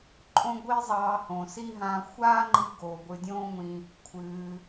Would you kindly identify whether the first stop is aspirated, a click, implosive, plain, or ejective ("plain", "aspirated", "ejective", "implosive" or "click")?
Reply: click